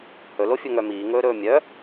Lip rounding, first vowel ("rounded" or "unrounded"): rounded